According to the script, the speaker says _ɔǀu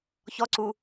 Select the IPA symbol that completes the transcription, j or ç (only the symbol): ç